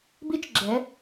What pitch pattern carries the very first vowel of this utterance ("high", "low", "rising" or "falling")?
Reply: rising